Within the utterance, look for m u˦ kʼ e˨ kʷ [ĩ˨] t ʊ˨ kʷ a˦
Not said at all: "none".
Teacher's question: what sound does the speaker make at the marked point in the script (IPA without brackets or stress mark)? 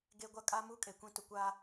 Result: ĩ˨